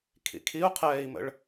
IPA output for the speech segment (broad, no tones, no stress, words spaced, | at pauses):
kʰḭkʰiu̯qʰɛːi̯mə̰ɭ